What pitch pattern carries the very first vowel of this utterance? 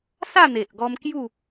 falling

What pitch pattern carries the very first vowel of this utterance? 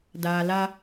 low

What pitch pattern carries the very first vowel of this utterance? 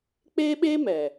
high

